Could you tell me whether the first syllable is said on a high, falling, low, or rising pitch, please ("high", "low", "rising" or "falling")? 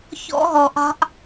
high